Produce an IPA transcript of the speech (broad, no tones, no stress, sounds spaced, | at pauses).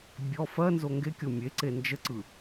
bʲ ɔ f ɜ n z o ŋ ɡ e kʲ o mʲ e ǀ e n d͡ʒ ə ǀ ɯ